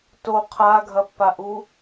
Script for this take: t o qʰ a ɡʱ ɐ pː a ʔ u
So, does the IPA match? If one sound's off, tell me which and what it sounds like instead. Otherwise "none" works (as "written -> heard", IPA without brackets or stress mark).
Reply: none